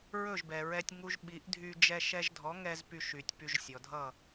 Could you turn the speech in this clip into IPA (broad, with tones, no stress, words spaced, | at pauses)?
ɹɵ˥˩ʒbɛ˩ɹɛ˧tʲ ŋu˧ʒ ɓi˩˥ʔdʱy˧ d͡ʒɛ˧ʃɛ˧ʒdʱɔ˩˥ ŋɛ˧z py˧ʃy˩tʲpy˧ʒ sʲɔ˩dʱʌ˥˩